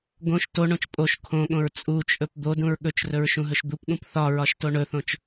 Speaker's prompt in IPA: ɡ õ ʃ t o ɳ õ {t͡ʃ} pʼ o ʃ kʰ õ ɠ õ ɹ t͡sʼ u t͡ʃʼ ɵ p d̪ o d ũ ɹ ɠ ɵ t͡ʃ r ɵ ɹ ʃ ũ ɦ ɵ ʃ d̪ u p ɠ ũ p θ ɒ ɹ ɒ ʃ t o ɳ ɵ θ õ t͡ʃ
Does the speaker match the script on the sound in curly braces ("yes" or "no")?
yes